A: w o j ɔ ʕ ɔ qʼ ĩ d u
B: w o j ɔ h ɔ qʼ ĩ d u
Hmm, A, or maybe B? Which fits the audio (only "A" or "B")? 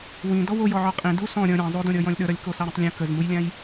A